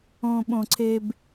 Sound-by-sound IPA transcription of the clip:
õɓõǀʰeb

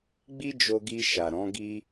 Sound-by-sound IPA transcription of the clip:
ɡ͡bi˦d͡ʒo˧ɡi˧ ʃa˨ɾɔ̃˨˦ ɡi˧

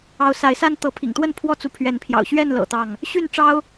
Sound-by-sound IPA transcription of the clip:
ɑ˨˦ʊ̯sa˨˦ɪ̯sa˦n t̪ɤ˨˦pʰḭ˨˩ŋt̪wə˥˨n pʰwɔ˥˨t͡su˨˦pʰɥɛ˨˦npʰjɑ̰˨˩ʊ̯ ɕɥɛ˥˨nlɤ̰˨˩ t̪ɑ˥˨ŋ | ɕy˥˨nʈ͡ʂɑ˦ʊ̯

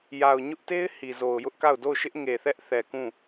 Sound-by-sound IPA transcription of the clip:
ja˨ʊ̯ɲʊ˦ʔte˦ɪ̯ hi˨zo˨ʊ̯jʊ˦ʔka˦˨ʊ̯ do˦˨ʊ̯ʃɪ˦ʔ ŋe˨θɛ˦ʔ θɛ˨kũ˦˨

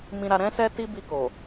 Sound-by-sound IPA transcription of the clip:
mĩ˧ɾa˧ ɾɛ̃˦sɛ˦ ti˦bi˧ko˨

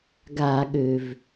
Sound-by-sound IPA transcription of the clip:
ɡa˧˩˧ɠø˩v

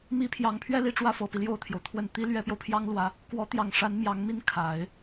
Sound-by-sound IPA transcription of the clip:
mi˧˥pʰjɑ˨˩ŋpʰɥɛ˥˧li˥˧ ʈ͡ʂwä˥˩fɤ˨˩pi˦ ljo˥˩ʊ̯t̪ʰjo˩ʊ̯t̪ʰwə˥˩n t̪i˥ lɥɛ˧˥pjo˧ʊ̯pʰjɑ˥ŋ lwä˧˥ | kwɔ˧˥t̪jɑ˨˩ŋʂa˧˥n mjɑ˧˥ŋmi˥˩n kʰa˨˩˦ɪ̯

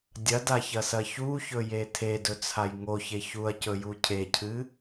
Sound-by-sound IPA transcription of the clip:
dʲɐdaçɐsɐ çuçɵje tʰedɵt͡sʰaj ŋoçe çuɐ̯cɵju cʰecʰɨ

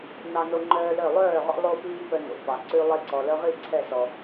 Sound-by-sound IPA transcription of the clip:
nɑ˦no˦ ŋ͡ǃœː˦lœ˥˩ lˠœː˥˩ʁɔ̰˦ lˠo˦piː˦ pœ˦no̰˨fɑ˨ ǀʉ˦lˠe˦ ǀɔ˨lœ˦ʁi˥˩ ǀʰɛ˥˩sɔ˨

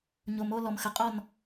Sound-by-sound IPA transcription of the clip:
ɲo˨mo˧ lɔ˨mxə˨qʼɔ˦˨n

